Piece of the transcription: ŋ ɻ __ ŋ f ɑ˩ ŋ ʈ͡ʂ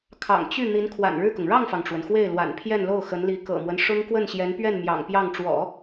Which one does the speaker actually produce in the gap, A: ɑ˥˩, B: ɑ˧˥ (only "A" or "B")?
A